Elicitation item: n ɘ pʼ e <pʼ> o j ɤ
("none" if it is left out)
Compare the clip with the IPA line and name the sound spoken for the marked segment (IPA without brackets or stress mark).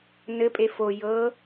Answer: f